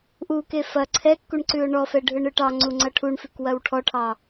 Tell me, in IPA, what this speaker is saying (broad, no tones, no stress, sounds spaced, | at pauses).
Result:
ʔ u k e f ɐ ǀʰ ɛ kː u ɳ ǀ ʉ ʊ̯ ɳ ɔ f ɛ ɖʱ ɯ ɳ ɯ ʈ ɑ ŋ͡ǀ u ŋ͡ǀ ɐ ʈʰ u ɳ f ʉ k w ɐ w ʈʰ ɔ ʈʰ ɑ